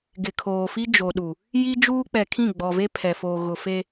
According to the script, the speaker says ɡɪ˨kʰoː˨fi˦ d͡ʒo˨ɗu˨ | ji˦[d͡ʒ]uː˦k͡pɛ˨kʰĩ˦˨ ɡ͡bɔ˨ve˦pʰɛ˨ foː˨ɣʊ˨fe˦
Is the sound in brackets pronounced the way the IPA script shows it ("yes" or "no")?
yes